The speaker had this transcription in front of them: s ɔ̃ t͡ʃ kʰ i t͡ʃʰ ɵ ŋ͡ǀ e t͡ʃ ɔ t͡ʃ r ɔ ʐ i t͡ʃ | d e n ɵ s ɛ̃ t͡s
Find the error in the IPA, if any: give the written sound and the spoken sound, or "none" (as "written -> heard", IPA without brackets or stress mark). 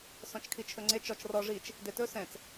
n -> t